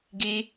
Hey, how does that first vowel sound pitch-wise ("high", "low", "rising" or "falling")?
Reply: high